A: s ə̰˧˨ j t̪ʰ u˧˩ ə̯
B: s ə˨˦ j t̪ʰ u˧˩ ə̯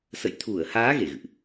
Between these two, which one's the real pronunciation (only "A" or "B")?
A